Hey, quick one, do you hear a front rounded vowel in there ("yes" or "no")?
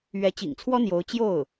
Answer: no